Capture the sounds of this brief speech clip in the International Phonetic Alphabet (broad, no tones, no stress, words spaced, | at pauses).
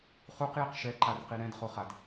χuqjiq ʃɛǃarqi ɾɛ̃dχoχad